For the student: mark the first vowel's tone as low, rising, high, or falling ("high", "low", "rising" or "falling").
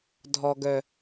low